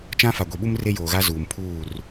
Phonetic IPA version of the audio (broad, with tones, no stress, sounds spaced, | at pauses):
t͡ʃ ã˦ f a˨ ɡʷ i˨ ɓ u˦ m r e˦ j oː˨ ɣ a˦ z uː˨ m pʰ uː˦˨ r